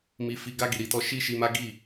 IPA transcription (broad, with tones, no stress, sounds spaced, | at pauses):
m i˨ f i˨ ɡ a˧ ɡ i˨ ɾ i˨ t ɔ˧ ʃ i˦ ʃ i˧ m a˦ ɡ i˦˨